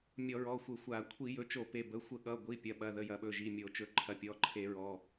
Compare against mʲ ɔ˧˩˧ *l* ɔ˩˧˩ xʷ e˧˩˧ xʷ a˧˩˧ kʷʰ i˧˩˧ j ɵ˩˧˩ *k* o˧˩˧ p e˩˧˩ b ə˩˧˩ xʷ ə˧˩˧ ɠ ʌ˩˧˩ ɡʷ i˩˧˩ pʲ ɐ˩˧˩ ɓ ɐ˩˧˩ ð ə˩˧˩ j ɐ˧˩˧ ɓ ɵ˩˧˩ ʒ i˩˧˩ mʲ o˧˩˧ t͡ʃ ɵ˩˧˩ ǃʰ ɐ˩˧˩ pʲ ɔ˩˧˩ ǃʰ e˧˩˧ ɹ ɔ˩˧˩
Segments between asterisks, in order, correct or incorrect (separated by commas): incorrect, incorrect